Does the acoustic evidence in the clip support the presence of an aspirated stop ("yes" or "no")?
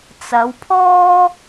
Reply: yes